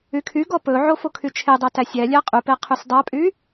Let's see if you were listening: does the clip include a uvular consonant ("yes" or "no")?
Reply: yes